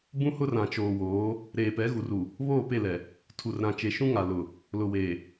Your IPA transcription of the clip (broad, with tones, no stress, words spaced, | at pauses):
bũ˦hʊ˦r ã˨t͡ʃoː˨woː˨˦ | ɾeː˨pɛ˨˦ɣu˨ru˨ | βoː˦˨pe˦˨lɛ˨ | tʰu˨rɾã˨ t͡ʃe˨ʃũ˦ŋa˨ lʊ˨ | lʊ˨weː˨